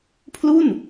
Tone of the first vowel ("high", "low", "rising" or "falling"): falling